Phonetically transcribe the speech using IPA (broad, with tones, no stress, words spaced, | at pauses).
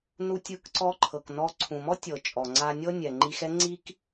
nu˧tʲɯ˧kǀɔ˧ ǃʰɤ˩knɔ˧ ǀʰũ˩mɔ˥tʲɤ˩ t͡ʃʼɔ˩ŋ͡ǀa˧nʲɤ˥nʲɛ˩ ŋ͡ǃi˧xɛ˥ ŋ͡ǀi˥k